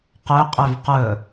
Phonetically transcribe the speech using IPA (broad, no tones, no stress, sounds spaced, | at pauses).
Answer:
q ø qʼ ø v q ɵ